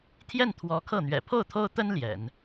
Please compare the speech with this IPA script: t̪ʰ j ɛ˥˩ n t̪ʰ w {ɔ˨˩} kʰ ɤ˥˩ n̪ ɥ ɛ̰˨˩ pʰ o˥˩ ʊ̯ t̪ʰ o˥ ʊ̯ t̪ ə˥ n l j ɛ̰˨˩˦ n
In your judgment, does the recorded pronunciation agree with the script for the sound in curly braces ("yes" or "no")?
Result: no